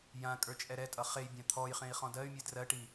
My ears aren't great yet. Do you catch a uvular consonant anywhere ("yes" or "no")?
yes